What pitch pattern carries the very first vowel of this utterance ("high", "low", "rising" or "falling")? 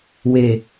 low